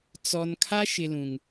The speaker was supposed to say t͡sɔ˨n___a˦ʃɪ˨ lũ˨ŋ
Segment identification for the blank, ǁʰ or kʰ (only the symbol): kʰ